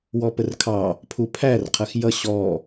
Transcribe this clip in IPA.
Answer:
w ɔ p ə r kʰ ɑ | pʰ u pʰ æ r qʰ ɜ x j ʌ ɕ ɔ

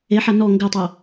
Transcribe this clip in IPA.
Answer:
e ħ a n ɔ ŋ ɡ ɘ tˤ o

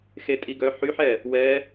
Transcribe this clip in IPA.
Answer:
x e˦˥ tʼ i˦˥ ɡ œ˦˥ ħ y˦˥ ħ ɛ˥˧ | w ɛ˦˥

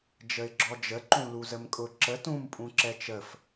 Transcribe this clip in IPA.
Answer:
d͡ʒ ə ɪ̯ ɡ͡ǁ ɔ d͡ʒ ə ǃ ũ l u z ə m kʼ ʊ ǁ ə t ũ m pʼ ũ ǁ ɛ t͡ʃ ə f

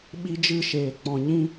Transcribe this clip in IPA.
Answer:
ɓ i˦ d͡ʒ ɨ˦˨ ʃ eː˨ k͡p ɔ̃˨ ɲ ĩ˦

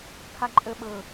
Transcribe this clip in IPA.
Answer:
kʰ a ǃʼ ə ɓ ɤ

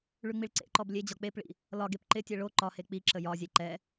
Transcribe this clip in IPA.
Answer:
ɭ ʉ ŋ͡m i ɭ ǀ ḛ ǃ ɔ b lʲ e d͡ʑ ɒ k͡p e p ɭ ḭ | l ɒ ɡ e p ǃ ɪ tʲ ɛ ɭ o ǃ ɒ h e k͡p i ǁ ə j ɒ zʲ ɛ ǃ ɛ

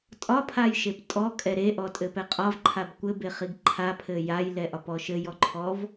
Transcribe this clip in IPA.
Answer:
tʼ ɒ pʰ a j ʃ e p tʼ ɔ kʼ ɛ ɾ e ʔ ɔ tʼ ɘ p ɛ qʼ ɒ v ǃʰ a b kʷ ɘ b e χ i ɡ ǃʰ a pʰ ɘ j a j l ɛ ʔ ɒ p ɔ ʃ ɘ j ɔ ǃʰ ɔ v

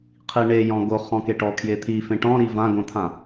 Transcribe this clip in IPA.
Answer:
qʰ i ɳ e j ɔ̃ ɡ o χ ɔ̃ k e ʈ ɔ kʰ j e t̪ʰ i f ẽ ʈ ɔ̃ ɾ i v ã ɡ õ t̪ʰ ã

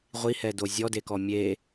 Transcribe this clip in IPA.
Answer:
ʁʷ i h ɛ d o zʲ ɔ d e k ɔ mʲ e

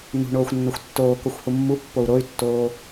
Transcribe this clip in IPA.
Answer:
n ṳ ɳ oː xʷ nː o xʷ tː oː k o xʷ h u mː u pː o u̯ ɾ o y̯ tː oː

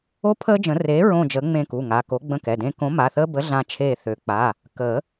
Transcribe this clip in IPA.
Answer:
o˦ pʰ əː˦ d͡ʒ ə̃˨˩˦ r eː˨˥ ɹ õ˦˨ d͡ʒ əː˨˥ ŋ͡m ẽ˦˨ k u˩˧˩ ŋ a˩˧˩ k o˨˥ ɡ͡b ə̃˦˨ k ɛ˩˧˩ d ẽː˦ k õ˨˥ m a˩˧˩ θ əː˦ b ə˨˥ ɮ ã˦ t͡ʃʰ eː˦˨ θ ø˨˩˦ k͡p a˩˧˩ | k əː˨˩˦

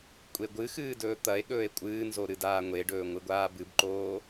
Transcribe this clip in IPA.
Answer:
kʷʼ e ɡʷ ɨ x ɨː d ɵː t̪ ɐ e̯ ɠ ɵː e̯ kʷʼ ɨː n z o ɾ ɨ d aː ŋʷ e ɖ ɵː ŋʷ ɨ ɡʷ aː b ɨ b ǃ oː

